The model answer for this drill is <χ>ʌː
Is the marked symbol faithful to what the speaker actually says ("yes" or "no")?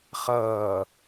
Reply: yes